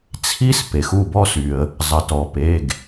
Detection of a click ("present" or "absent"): absent